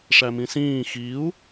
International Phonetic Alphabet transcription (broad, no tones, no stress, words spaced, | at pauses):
ʂæmĩsĩː xiu̯